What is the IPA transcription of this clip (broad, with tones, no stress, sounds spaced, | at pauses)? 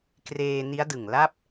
k r eː˧ n i˦˥ a̯ d ɯ˨˩ ŋ l a˥˩ p̚